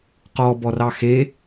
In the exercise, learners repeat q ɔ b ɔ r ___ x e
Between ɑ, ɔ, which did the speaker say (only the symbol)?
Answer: ɑ